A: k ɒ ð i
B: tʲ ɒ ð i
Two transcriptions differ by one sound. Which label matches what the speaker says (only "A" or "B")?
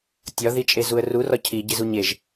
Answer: B